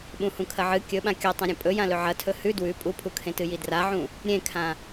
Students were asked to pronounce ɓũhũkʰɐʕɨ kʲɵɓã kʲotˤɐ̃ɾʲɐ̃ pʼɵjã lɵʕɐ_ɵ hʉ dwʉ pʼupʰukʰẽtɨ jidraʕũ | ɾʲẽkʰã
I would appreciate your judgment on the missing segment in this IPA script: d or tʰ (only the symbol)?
tʰ